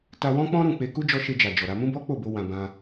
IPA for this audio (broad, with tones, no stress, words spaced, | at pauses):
ta˧wɔ̃˦k͡pɔ̃˦ɾũ˦˨ k͡pe˧ ku˦d͡ʒɔ˧ʃe˧d͡ʒa˨ d͡ʒɔ˨ɾa˧ mũ˦bɔ˦ k͡po˦˨bo˧ wã˨ bã˧